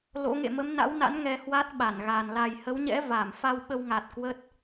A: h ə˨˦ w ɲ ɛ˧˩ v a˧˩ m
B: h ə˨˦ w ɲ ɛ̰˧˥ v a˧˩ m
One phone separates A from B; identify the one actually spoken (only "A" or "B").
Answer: B